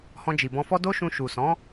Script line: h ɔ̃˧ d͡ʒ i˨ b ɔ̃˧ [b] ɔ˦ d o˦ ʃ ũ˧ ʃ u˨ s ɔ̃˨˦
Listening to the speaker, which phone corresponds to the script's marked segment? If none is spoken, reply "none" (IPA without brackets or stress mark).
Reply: f